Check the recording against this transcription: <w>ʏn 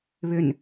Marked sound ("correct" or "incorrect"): incorrect